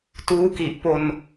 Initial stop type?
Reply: plain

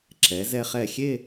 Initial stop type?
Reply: click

